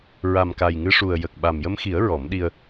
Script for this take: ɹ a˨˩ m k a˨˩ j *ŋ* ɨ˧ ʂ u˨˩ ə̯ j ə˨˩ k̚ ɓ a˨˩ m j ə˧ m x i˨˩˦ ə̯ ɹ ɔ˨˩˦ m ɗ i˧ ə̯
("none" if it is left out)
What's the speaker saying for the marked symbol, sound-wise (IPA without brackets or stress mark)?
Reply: ŋ